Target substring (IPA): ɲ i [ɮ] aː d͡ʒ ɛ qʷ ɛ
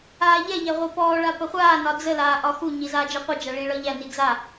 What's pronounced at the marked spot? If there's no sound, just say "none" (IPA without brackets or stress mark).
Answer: z